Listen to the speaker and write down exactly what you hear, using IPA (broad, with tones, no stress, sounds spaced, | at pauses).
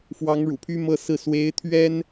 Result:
f w ɑ˧˥ ŋ ɻ ṵ˨˩ pʰ y˥ m ɤ˥˧ s ɹ̩˥˩ s w e˧˥ ɪ̯ t̪ʰ ɥ ɛ˥ n